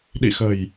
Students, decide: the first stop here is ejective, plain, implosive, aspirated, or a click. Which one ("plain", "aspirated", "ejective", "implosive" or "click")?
implosive